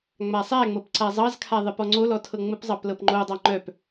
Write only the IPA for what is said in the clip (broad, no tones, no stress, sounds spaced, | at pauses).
ŋ͡m a sˤ æ ŋ͡m ɤ p ǀ a zˤ ɑ z kʰ a ðˤ ə p ɔ ŋ͡ǀ o l ɔ tʰ ɤ ŋ͡m ə p zˤ ɑ p l ɤ p ŋ͡ǃ o dˤ ɑ ŋ͡ǃ œ p